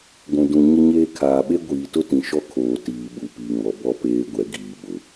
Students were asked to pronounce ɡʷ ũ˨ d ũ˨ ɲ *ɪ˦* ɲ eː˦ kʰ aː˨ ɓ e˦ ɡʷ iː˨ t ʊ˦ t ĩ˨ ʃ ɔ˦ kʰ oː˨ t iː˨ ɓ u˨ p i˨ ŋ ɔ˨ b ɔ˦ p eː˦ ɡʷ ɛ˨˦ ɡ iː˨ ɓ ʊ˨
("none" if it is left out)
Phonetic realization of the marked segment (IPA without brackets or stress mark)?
ɪ˦